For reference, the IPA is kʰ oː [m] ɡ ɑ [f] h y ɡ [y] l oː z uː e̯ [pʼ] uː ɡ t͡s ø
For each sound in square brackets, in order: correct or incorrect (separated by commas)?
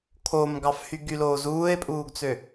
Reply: correct, correct, correct, correct